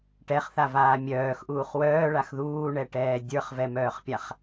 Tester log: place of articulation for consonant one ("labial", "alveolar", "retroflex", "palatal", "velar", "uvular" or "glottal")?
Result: retroflex